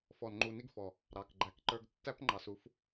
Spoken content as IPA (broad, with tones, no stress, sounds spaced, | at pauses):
f ɔ˨ n ŋ͡ǃ u˨ n i˧ ɡ f ɔ˨ | ɾ ɑ˨ k ɡ͡ǃ æ˨˦ k ǃ ə˞˧ ɡ tː æ˧ p ŋ͡ǃ ɑ˨ s u˧ f